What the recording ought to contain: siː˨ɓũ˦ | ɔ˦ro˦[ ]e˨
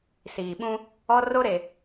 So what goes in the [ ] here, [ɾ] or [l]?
ɾ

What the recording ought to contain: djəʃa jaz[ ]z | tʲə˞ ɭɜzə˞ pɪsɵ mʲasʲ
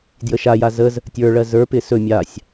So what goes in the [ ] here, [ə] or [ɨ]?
ə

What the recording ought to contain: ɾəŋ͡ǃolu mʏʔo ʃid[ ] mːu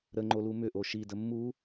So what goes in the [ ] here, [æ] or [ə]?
ə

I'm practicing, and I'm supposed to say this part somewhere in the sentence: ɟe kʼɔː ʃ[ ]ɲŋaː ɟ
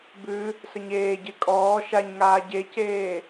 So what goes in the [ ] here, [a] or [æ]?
a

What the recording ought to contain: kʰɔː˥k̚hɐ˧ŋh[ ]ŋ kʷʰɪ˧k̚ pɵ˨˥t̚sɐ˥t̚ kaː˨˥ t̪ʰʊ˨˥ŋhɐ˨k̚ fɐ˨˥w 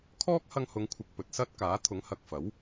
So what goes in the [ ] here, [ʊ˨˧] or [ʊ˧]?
ʊ˨˧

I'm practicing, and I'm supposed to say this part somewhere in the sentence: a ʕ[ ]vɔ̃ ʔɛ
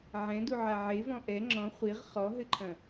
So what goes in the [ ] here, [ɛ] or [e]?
e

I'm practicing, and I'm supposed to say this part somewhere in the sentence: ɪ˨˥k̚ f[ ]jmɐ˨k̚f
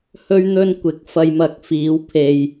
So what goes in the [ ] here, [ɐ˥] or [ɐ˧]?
ɐ˧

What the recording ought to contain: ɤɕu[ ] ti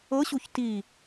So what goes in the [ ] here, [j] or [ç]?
ç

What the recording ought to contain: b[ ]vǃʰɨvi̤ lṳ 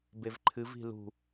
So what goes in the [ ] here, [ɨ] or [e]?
e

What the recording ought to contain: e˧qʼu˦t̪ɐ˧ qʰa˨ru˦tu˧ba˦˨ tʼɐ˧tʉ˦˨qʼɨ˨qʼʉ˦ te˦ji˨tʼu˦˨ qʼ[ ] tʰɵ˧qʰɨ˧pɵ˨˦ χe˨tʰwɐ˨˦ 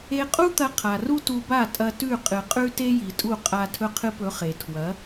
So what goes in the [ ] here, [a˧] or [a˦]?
a˧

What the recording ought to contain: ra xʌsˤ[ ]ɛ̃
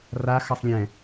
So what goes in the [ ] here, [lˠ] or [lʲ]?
lʲ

